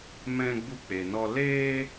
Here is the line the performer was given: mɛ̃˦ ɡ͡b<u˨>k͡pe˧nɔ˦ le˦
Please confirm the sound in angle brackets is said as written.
no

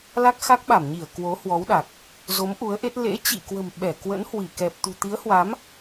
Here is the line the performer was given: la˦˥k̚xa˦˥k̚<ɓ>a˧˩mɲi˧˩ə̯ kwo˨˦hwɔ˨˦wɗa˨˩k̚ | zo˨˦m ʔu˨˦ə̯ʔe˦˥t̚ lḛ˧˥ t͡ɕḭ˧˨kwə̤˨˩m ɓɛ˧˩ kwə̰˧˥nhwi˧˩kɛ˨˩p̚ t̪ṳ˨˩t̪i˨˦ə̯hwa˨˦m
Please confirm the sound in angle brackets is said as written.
yes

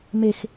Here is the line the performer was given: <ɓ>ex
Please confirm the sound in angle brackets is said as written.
no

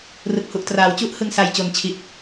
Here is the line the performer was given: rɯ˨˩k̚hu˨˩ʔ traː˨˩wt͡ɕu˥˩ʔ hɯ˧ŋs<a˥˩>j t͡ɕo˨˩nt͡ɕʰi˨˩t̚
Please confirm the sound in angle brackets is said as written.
no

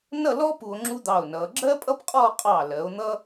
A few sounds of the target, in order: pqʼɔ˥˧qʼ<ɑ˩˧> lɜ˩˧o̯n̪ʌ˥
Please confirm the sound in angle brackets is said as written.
no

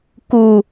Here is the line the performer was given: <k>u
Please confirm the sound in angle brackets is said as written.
yes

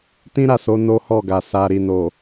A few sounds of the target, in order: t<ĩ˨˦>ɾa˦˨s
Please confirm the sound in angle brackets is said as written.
no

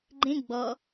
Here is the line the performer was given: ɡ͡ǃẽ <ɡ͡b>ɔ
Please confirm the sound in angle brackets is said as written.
yes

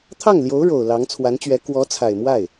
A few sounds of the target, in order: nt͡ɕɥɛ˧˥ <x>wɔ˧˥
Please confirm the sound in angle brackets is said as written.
no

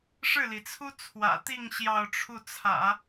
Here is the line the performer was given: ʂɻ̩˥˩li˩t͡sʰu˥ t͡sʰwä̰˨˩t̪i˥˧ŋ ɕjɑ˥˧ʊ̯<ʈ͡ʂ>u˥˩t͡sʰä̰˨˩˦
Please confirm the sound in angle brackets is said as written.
no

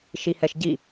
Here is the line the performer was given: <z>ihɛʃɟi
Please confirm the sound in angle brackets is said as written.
no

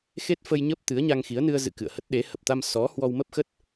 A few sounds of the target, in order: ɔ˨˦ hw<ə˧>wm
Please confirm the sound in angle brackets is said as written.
no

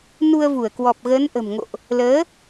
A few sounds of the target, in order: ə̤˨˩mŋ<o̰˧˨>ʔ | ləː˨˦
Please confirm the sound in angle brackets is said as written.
yes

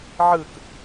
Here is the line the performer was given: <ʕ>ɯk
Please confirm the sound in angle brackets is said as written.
yes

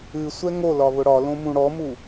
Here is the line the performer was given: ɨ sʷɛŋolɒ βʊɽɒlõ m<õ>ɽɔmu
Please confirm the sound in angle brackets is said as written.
no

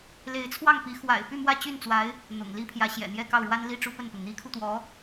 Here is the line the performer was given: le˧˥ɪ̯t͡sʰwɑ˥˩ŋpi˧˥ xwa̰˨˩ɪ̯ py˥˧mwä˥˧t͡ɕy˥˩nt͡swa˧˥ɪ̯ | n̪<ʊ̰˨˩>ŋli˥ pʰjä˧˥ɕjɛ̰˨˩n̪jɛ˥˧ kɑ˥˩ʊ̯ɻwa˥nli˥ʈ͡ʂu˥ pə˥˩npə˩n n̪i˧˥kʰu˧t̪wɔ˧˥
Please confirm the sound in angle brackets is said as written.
yes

